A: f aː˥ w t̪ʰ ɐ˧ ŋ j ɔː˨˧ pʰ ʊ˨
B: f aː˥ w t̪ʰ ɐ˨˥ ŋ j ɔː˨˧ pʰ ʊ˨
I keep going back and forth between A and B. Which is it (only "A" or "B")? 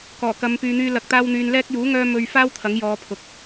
B